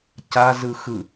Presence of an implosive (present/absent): absent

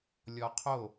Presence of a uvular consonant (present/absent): present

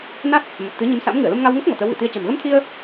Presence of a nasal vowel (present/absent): absent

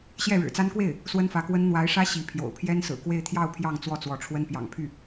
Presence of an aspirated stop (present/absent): present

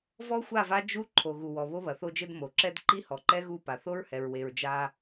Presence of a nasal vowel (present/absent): absent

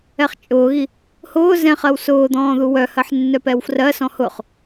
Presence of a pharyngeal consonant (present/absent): present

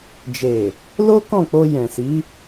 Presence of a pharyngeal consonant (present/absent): absent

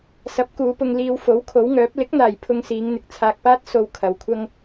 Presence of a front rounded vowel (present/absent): present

